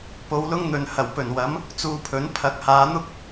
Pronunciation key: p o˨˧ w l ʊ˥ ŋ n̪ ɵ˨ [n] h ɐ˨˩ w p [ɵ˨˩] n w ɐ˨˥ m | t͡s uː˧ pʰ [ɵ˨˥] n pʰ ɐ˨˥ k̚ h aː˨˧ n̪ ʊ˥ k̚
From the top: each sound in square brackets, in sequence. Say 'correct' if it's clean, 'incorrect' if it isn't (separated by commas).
correct, correct, correct